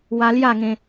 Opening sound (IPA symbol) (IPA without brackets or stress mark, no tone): w